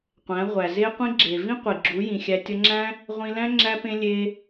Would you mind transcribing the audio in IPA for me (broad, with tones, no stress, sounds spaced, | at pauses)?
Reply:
qʷ æ̃˨˦ ʁʷ æ˨ z e˧ qʷ ĩ˧ ɡ͡ǁ e˨ v ĩ˦ qʷ i˨ ɡ͡ǁ u˨˦ j ĩ˨ xʲ æ˧ tʲ ʌ˧ ŋ͡ǁ æ̃˦ | ʁʷ ĩ˧ l æ̃˦ ŋ͡ǁ æ˦ p ẽ˦ lʲ e˦